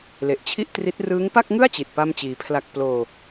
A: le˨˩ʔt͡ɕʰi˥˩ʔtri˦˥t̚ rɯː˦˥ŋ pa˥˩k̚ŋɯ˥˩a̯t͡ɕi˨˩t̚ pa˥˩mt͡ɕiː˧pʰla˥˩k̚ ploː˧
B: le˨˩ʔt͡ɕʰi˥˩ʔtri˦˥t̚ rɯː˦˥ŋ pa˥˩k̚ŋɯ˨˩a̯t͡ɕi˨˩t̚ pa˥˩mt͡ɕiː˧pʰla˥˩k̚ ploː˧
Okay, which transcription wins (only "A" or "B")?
A